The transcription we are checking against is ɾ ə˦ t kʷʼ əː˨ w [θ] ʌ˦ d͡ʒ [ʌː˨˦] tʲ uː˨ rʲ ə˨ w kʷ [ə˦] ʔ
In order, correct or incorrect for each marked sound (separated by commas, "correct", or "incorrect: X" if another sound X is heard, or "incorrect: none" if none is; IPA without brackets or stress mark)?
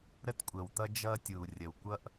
incorrect: t̪, incorrect: ʌː˦, incorrect: ʌ˦